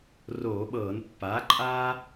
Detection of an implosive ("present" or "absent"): present